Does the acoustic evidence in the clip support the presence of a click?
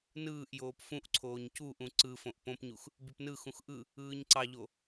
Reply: yes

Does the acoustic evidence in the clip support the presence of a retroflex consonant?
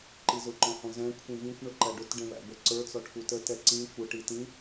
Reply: yes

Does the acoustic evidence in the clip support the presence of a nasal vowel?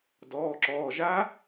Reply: no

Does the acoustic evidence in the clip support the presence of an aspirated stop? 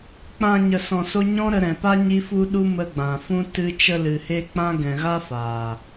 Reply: no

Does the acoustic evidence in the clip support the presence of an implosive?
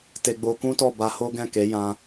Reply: no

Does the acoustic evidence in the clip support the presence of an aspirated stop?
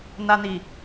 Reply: no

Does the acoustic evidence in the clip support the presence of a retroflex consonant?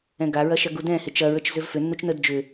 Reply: no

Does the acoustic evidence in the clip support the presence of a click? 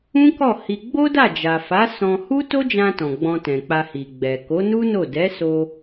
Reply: no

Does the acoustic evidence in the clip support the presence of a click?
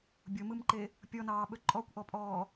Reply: yes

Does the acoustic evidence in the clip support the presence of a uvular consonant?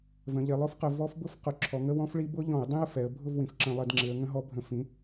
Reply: yes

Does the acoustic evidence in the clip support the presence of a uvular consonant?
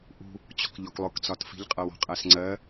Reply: yes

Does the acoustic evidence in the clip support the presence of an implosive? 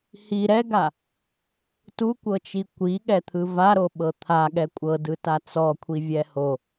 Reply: yes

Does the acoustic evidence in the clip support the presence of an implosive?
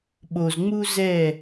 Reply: yes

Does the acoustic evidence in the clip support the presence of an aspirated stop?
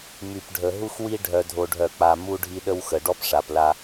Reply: no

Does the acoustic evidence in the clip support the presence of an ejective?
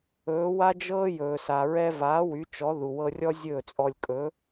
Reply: yes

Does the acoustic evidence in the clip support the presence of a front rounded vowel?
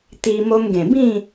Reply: no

